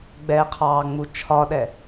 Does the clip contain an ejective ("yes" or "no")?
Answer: no